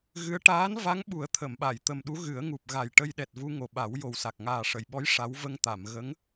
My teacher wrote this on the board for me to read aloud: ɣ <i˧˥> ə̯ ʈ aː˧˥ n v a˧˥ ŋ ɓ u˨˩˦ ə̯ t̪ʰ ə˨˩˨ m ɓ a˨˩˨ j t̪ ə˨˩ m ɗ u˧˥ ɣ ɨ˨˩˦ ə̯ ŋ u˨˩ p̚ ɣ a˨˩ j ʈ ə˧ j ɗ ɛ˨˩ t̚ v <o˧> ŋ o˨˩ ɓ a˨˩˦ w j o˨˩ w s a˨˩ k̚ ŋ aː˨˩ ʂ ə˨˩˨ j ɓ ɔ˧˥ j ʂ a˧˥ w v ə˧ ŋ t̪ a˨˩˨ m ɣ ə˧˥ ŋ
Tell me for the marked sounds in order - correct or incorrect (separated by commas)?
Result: incorrect, incorrect